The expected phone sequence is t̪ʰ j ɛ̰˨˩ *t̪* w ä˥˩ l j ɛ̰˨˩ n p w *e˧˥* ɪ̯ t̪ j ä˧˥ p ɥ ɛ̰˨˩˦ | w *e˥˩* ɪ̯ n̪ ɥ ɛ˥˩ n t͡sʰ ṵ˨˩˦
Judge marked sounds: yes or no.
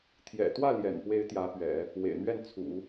yes, yes, no

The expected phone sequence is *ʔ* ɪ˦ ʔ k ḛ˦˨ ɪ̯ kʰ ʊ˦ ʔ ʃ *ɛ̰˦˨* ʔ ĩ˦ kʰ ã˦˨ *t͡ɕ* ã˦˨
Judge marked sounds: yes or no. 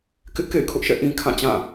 no, yes, yes

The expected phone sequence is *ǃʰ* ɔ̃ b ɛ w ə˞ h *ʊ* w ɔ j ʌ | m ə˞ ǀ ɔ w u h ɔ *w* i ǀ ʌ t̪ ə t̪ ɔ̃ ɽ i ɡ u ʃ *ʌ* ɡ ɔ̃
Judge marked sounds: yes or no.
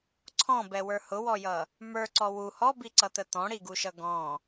no, yes, no, yes

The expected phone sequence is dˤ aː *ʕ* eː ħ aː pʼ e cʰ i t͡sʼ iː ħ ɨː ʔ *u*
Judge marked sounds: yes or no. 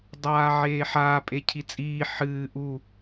yes, yes

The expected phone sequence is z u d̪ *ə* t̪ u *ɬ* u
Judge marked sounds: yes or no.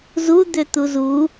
no, no

